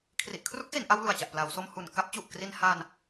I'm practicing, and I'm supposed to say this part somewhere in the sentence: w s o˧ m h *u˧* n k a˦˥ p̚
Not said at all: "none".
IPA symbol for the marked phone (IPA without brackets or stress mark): u˨˩